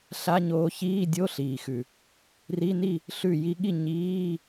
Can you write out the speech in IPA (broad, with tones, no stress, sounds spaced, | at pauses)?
ɬ a˧˥˧ ɲ oː˧ ç iː˧˥˧ dʲ o˧˥˧ ɬ iː˩ x ʉ˩ | r i˧˥˧ n i˥˨ | ɬ ʉ˧˩ j i˧ ɠ i˥˨ ɲ iː˧˥˧